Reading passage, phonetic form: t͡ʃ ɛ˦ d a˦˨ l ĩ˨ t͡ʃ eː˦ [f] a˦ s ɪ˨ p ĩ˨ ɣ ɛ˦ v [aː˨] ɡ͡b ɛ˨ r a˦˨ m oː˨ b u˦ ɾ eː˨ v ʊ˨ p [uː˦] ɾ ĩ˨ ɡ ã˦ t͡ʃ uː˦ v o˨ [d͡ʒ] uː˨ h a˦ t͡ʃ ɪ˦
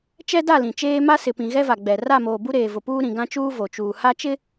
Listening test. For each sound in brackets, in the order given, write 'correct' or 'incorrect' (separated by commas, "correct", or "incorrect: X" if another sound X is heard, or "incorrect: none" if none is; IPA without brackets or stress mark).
incorrect: m, incorrect: a˨, correct, incorrect: t͡ʃ